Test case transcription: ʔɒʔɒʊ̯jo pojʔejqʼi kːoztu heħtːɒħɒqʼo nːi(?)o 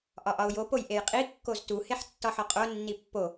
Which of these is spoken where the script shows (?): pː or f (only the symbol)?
pː